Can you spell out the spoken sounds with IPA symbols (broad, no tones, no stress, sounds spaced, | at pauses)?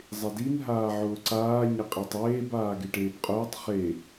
zˤ ɪ d i n ɦ aː ʕ ʊː ǀ aː ɲ ɪ qʼ e tˤ eː b aː ɡ e ʈ eː b qʼ ʊː tˤ χ e